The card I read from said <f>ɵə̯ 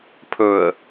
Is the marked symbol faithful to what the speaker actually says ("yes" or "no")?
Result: no